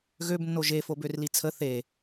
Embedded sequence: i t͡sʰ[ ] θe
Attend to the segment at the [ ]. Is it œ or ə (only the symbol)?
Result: ə